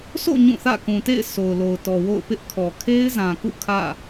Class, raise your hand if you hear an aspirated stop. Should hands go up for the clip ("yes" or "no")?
yes